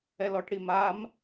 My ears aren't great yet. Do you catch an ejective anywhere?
no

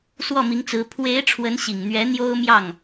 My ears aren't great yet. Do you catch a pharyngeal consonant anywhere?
no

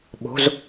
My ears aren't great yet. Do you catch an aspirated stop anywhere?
no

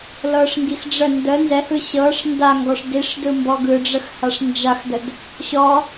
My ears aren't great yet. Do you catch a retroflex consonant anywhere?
yes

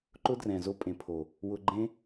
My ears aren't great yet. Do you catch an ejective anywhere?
yes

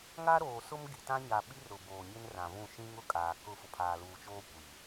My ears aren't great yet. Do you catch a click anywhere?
no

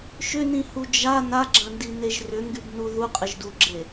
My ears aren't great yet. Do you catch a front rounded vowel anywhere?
yes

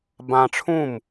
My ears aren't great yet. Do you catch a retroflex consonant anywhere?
yes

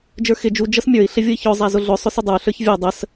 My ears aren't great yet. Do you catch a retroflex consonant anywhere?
no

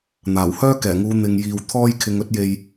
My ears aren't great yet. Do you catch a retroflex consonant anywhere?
no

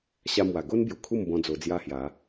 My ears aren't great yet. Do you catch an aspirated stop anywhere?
yes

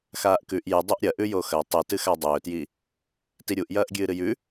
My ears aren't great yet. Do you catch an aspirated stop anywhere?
no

